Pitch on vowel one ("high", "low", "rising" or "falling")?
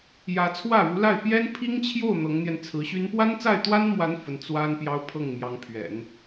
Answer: rising